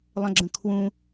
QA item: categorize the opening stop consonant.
click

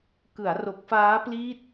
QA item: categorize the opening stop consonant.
plain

